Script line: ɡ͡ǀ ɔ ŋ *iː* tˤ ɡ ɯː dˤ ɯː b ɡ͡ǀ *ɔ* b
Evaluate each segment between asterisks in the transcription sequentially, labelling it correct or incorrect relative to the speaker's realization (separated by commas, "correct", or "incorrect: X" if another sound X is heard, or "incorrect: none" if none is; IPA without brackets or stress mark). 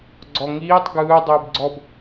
correct, correct